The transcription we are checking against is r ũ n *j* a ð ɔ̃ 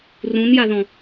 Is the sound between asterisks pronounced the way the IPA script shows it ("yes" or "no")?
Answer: yes